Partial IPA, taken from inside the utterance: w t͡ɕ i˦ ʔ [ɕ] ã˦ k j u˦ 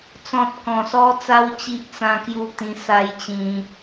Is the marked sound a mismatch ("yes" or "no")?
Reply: yes